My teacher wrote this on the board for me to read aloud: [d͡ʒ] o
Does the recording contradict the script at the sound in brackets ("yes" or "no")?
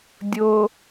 yes